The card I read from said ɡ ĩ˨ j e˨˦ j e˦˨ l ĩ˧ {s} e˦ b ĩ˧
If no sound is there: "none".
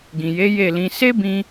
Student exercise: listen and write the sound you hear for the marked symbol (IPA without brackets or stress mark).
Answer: s